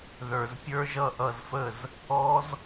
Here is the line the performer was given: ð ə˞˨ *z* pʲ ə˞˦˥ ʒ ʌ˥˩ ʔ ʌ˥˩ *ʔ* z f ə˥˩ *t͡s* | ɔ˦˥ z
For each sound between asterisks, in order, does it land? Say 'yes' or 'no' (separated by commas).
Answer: yes, no, no